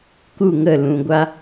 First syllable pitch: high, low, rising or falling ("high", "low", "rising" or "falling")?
falling